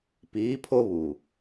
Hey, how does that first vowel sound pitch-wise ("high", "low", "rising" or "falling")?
rising